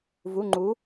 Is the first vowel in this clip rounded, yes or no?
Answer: yes